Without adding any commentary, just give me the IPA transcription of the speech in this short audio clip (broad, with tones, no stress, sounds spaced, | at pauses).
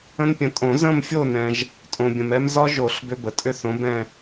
ə̃˦ n pʲ ə̃˨˦ tʼ õ˨˩˦ z ə̃˦˨ m fʲ o˦˨ n ɛ̃˨ ʒ | tʼ õ˨ bʲ ə̃˨ m ɛ˦ m z ɒ˦ ʒ o˨˩˦ ɬ b ʏ˦ b ə˨ tʼ ʏ˦ θ õ˨˦ b ɛ̃˦˨